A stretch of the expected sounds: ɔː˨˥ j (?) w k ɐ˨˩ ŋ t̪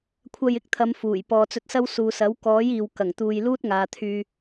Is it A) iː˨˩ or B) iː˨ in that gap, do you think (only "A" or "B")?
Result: B